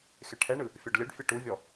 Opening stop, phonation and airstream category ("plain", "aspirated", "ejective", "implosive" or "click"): aspirated